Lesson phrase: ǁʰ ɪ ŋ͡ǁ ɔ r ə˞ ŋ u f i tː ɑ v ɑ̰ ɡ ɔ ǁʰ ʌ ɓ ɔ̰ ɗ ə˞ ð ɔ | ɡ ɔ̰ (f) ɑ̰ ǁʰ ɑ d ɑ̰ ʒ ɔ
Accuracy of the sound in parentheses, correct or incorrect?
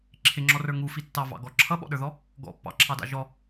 incorrect